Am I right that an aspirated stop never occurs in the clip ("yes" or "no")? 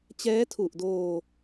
no